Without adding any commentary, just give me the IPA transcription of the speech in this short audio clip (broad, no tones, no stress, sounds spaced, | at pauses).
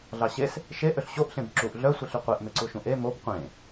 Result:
ɮ ɑ ɕ e s | ʃ e ʔ ø ɬ ɕ o ʔ ɬ ẽ b ǁ u ʔ ɮ œ sʷ i ɬ y qʷ e ʔ m e ǀ u ʃ ũ ʔ e m o b qʷ ẽ